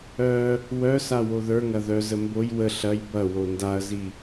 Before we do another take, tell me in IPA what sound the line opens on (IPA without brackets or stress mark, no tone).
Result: œ